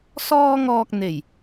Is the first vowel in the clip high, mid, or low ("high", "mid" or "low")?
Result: mid